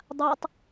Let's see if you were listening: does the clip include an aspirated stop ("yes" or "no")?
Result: no